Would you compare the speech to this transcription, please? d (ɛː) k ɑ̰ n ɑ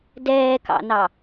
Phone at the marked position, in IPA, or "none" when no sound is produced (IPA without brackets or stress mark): ɛː